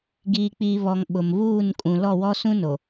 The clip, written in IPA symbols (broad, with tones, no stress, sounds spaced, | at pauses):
ɡ iː˨ k͡p iː˨ β ɔ˨ ŋ ɓ ʊ˨ m β uː˦˨ n kʼ ũ˨ l ɔ˦˨ w ɔ˦ s ũ˦ n o˨